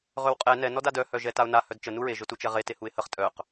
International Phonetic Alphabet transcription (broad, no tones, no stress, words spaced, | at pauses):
ʁɵwqʼɛ nɛ nɔdadœ hœʒɛtaʊ̯na hœdt͡ʃə nuɹe ʒɵtut͡ʃɛʁe tehuɪ̯həχ tʼœq